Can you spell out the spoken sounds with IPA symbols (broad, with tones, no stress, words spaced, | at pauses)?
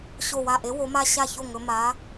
ɕo˧˩wa˧˩ʔe˨˥ wo˨˥ma˥˧ ɕa˥˩ço˥˩ ŋɵ˨˥ ma˨˥